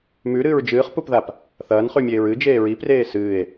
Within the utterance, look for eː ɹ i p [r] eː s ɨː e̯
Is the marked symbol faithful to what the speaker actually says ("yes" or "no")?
yes